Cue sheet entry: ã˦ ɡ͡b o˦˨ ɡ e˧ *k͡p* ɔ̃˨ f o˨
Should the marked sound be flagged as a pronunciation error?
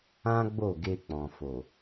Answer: no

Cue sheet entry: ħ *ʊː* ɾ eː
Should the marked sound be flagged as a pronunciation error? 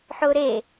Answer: no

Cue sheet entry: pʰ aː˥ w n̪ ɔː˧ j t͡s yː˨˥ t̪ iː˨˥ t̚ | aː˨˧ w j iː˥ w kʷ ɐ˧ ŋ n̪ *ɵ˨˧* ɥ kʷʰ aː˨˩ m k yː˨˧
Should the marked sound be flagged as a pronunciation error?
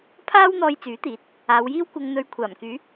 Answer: no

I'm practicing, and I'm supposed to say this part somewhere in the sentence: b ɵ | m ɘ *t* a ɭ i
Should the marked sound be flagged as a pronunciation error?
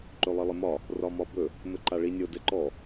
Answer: yes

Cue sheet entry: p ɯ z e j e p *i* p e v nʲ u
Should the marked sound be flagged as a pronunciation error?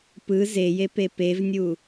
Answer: yes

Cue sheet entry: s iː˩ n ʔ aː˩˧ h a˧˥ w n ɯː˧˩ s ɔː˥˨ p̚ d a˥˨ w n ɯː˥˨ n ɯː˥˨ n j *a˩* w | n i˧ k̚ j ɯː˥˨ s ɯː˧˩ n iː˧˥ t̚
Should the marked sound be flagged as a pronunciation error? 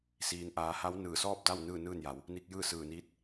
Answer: yes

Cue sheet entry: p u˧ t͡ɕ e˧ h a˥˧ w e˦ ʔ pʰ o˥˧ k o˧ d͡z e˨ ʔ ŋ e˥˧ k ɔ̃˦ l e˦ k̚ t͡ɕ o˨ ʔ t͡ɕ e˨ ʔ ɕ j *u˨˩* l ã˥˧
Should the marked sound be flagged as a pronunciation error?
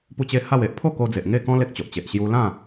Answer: yes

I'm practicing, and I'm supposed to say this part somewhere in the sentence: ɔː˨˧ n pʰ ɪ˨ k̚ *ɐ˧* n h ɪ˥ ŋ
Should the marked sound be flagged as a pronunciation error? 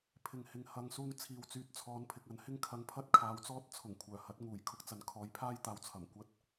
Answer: yes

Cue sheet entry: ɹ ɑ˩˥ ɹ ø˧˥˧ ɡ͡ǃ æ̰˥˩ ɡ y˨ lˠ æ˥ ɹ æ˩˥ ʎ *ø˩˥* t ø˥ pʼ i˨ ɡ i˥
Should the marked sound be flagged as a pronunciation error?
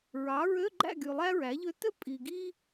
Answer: yes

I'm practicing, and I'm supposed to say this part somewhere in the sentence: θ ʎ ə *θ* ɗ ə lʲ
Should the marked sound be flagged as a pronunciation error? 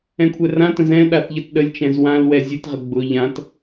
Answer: yes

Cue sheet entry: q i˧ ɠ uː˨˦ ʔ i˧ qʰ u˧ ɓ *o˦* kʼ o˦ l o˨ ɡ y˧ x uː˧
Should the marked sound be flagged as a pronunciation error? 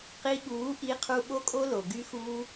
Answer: no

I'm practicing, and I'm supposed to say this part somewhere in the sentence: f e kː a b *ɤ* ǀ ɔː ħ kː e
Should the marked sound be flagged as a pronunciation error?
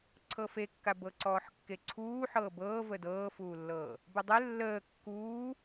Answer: no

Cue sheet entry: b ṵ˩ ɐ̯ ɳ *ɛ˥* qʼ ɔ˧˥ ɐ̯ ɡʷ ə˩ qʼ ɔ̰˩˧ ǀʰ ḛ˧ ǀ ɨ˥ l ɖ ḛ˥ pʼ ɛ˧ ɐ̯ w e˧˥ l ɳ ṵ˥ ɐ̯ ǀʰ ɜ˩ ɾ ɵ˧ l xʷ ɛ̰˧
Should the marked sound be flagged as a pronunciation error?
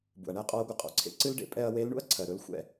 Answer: no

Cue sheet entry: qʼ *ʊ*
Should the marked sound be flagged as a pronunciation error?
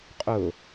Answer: no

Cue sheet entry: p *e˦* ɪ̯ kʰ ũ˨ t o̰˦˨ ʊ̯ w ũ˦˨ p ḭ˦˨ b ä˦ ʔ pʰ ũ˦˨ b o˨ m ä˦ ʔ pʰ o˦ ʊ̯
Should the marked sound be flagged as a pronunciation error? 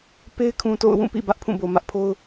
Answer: no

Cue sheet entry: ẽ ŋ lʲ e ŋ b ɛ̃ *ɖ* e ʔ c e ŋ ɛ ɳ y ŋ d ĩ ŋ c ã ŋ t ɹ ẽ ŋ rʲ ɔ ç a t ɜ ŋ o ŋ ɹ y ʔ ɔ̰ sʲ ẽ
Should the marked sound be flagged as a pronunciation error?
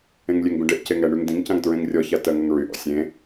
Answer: no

